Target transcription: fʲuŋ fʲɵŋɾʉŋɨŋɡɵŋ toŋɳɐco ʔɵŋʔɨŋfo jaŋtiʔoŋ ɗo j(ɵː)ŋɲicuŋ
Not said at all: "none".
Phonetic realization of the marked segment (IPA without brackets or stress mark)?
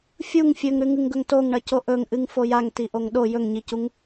ɵ